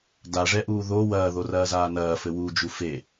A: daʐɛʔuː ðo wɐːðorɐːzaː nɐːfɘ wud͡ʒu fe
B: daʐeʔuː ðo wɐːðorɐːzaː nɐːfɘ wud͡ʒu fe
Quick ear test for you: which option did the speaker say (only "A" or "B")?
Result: A